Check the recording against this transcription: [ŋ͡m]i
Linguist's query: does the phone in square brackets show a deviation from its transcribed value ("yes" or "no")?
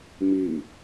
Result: yes